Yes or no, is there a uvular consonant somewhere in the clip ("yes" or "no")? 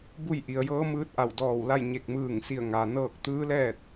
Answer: no